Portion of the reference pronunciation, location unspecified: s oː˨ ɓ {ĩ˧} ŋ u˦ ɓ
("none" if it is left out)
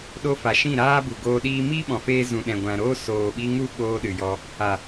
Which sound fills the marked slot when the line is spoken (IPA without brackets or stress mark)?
i˧